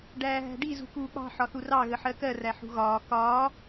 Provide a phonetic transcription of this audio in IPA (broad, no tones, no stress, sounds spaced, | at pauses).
ɖ æː ɦ æ̤ ɖ i z ṳ k uː k͡p ɑ̤ ħ ɒ θ u r ɑ ɣ ə ħ ɜ k ɜ r æ ħ ṳ ɣ ɒː k ɒː